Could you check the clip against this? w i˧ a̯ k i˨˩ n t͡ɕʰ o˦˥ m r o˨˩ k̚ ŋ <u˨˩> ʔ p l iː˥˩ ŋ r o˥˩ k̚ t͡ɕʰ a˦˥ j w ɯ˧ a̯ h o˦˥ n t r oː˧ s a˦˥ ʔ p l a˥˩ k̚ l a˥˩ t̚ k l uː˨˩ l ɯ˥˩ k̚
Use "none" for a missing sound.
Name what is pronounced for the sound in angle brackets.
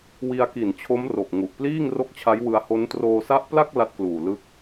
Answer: u˨˩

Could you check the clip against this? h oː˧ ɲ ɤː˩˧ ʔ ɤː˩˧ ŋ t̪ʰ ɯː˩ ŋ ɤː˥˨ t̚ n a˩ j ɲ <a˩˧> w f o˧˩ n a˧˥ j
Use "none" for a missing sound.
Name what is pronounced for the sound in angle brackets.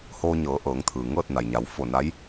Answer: a˩˧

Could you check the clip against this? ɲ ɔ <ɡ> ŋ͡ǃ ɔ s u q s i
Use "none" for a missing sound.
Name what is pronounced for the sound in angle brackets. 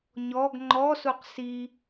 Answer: ɡ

